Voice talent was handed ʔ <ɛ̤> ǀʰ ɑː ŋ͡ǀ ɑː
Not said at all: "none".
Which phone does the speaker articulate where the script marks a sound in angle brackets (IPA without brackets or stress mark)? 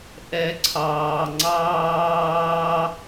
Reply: ɛ